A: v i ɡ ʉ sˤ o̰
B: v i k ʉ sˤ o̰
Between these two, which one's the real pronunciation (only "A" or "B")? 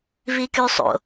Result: B